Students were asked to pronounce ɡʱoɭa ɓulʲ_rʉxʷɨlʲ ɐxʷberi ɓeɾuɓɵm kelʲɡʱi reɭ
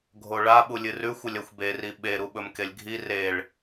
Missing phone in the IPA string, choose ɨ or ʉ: ɨ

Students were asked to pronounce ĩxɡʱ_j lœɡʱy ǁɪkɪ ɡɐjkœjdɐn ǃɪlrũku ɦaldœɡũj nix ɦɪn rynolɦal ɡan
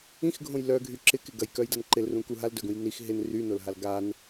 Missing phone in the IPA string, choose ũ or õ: õ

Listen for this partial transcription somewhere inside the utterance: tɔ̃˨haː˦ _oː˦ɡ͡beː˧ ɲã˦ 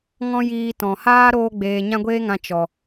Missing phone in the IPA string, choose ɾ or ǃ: ɾ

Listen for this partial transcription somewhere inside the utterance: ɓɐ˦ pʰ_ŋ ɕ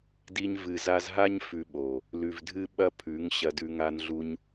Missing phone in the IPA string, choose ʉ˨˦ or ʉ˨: ʉ˨˦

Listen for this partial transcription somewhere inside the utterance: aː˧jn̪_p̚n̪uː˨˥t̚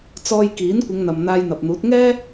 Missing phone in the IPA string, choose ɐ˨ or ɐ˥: ɐ˨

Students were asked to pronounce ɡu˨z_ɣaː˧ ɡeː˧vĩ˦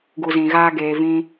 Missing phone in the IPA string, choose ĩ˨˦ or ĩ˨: ĩ˨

